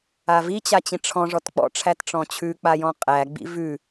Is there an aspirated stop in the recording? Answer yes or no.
yes